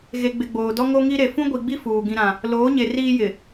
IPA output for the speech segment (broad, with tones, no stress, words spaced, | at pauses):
ɣe˨ɡ͡bɪ˨ ɡ͡boː˨dɔ˦ ŋo˦ŋi˦ɾe˨ fũ˦ɡʷi˨ɡ͡bi˦ fuː˨ ɡĩ˦ɾã˦ | loː˨˦ɲe˨ riː˦jɪ˨